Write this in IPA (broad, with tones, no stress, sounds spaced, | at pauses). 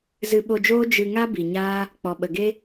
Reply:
z ɨ˧ ɓ o˧ d͡ʒ oː˦ d͡ʒ ɨ˧ ŋ a˦ b i˨ ɲ aː˦ | k͡p ɔ˨ ɓ ə˨ ɡ e˦